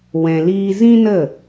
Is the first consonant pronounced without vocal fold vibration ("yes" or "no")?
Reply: no